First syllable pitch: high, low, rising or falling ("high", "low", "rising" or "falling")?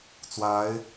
rising